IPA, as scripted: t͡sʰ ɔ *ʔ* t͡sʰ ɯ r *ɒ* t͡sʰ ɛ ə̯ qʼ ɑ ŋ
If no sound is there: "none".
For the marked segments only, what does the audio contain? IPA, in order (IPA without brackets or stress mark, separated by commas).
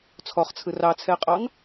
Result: χ, ɑ